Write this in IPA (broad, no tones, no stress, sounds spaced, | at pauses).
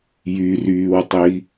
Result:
j y r yː w tˤ i